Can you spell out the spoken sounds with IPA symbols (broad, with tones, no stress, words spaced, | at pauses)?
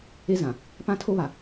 e˦zã˨ | pã˦tʰo˦βa˨